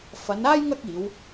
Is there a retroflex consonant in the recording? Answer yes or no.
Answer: no